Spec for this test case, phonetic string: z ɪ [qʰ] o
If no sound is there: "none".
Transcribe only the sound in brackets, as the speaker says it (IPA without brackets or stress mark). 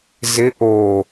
ʔ